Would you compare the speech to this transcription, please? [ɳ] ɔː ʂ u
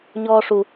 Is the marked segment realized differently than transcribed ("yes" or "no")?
yes